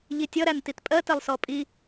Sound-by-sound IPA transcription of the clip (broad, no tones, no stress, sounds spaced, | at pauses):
ʎ i tʲ ʌ ɾ æ n t i t pʼ ɜ t ɛ lˠ s ɔ pʼ i